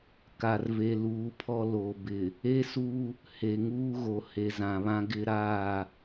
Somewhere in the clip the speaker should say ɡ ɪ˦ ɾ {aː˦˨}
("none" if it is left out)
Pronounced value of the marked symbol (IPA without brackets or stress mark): aː˦˨